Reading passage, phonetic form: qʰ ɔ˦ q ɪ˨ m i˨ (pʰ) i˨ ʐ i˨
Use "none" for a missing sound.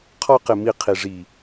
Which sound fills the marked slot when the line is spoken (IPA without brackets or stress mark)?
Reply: qʰ